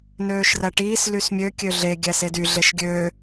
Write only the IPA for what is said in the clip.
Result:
n øː ʃ r æ ʈ iː s l y s mʲ ø kʲ ø ɮ e ɡʲ æ s e d y ɮ e ʃ ɡʲ ø

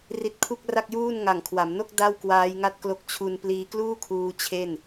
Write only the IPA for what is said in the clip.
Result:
r i˦˥ t̚ kʰ u˥˩ k̚ r a˥˩ k̚ j uː˥˩ n ŋ a˨˩ ŋ kʰ w a˩˦ m n o˥˩ k̚ d a˥˩ w k w aː˦˥ j ŋ a˥˩ t̚ k l o˦˥ k̚ t͡ɕʰ u˧ n p l iː˧ k l uː˥˩ kʰ uː˧ t͡ɕʰ e˥˩ n

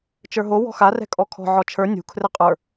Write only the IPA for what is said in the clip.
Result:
t͡ʃ ə˞ ɦ o w ɔ̤ x a r ɛ̤ kʼ ɔ kʰ ɔ̤ ʕ ɔ t͡ʃʰ ə˞ nʲ ṳ kʰ r ɘ qʼ ə˞

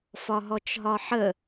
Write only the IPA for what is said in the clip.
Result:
f ɒ ɦ ɔ t͡ʃ ɦ ɒ ħ ə

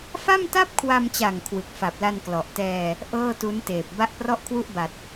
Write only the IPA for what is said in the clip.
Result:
f a˥˩ m t a˥˩ p̚ kʰ w a˧ m t͡ɕ a˨˩ ŋ kʰ w ɯ˨˩ k̚ f a˨˩ p̚ l a˧ n k l ɔ˨˩ ʔ t ɛː˧ | ʔ ɤː˥˩ t u˦˥ n t eː˨˩ p̚ b a˦˥ ʔ p r ɔ˥˩ ʔ kʰ w u˥˩ ʔ b a˨˩ t̚

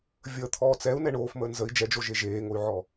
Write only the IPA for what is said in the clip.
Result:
vʲ əː t̪ʰ ɔː t͡s ɛ u̯ n ɛ ɳ oː f m əː n z ə i̯ d͡ʒ ɛ d͡ʒ o ʒ e ʒ eː ŋ o y̯ ʕ ɔ

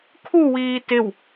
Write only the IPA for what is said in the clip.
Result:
kʰ u w iː t ɪ w

